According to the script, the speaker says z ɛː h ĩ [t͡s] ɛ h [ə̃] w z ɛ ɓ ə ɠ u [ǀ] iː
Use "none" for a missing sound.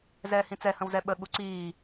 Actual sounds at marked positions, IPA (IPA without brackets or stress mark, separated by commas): t͡s, ə̃, ǀ